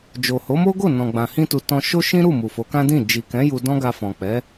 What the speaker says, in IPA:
d͡ʒ o˨ h o˨˦ m o˦ ɡ o˦˨ n ɔ̃˨ ɡ͡b ã˨ h ĩ˧ t u˨ t ɔ̃˧ ʃ o˦ ʃ ĩ˦ ɾ u˦˨ m u˨ f o˨˦ k ã˦ d ĩ˦˨ d͡ʒ i˨ k ɛ̃˨˦ j u˧ d ɔ̃˦ ɡ a˧ f ɔ̃˨ k͡p ɛ˨˦

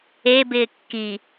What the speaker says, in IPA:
e b ɪː kː i

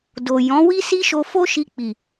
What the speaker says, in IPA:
d o˨ j ɔ̃˨˦ w i˦ s i˦ ʃ o˧ f o˦ ʃ i˧ k͡p i˨

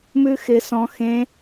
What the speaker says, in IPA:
m ʉ x ɪ s ɔ̃ x ẽ

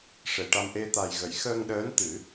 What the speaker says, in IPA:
ʂ e˨˩ ʈ a˧ m ʔ e˧ t̪ a˨˩ j ɣ ə˨˩˨ j x əː˧ ŋ ɗ əː˧˥ n t̪ ɨ˨˩˦

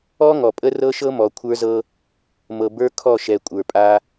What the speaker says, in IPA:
ɔ˦ ŋ ɔ˨ pʼ ə˦ r ɤ˦ ʃ ɤ˦ m ɔ˨ kʷʰ ə˞˦ z ɤ˦ | m ɤ˨ b ə˞˦ kʰ ɔ˦˨ ʃ ɛ˨ kʷʼ ə˞˨ pʼ a˦

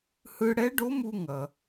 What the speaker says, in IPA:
h ɯ˧ ɽ ɛ˧˥ ɖ o˧˥ m u˧ ŋ ʌ˩

